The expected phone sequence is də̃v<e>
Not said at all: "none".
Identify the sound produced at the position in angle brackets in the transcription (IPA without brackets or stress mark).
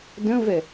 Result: ɛ